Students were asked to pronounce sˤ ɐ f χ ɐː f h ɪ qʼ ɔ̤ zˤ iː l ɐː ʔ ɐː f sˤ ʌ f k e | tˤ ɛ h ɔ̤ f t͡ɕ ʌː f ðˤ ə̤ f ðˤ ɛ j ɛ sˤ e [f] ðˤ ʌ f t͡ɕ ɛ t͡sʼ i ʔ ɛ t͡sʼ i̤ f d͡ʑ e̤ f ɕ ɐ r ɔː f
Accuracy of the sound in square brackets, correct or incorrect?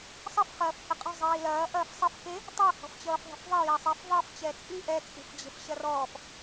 correct